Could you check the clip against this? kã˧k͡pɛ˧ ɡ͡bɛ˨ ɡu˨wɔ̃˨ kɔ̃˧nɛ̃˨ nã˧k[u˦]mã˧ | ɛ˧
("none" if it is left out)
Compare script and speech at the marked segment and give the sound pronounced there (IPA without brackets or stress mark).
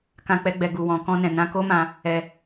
o˦